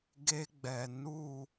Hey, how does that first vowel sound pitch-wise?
high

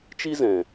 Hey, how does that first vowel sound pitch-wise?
high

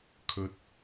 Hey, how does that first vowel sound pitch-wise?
low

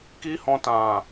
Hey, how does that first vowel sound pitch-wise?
high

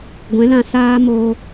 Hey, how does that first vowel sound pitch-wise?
rising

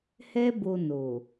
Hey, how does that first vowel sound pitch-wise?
high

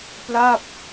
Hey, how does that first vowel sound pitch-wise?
falling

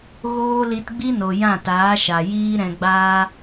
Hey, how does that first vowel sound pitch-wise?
high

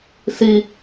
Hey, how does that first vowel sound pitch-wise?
high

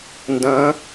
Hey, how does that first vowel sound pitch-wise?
rising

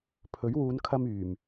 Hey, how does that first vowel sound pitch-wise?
rising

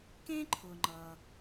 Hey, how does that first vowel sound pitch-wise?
high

